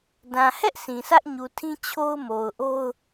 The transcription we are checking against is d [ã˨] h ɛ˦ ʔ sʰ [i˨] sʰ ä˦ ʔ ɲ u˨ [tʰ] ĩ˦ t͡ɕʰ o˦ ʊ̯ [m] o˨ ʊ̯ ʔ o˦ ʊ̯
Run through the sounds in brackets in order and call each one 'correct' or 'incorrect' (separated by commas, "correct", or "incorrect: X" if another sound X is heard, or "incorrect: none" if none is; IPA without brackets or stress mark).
correct, incorrect: ĩ˨, correct, correct